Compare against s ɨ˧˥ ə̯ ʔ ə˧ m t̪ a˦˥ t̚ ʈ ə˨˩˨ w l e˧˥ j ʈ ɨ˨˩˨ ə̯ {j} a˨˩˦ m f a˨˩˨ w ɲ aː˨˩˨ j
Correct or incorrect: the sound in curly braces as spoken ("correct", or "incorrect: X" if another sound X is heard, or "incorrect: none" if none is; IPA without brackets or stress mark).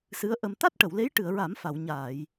incorrect: ɹ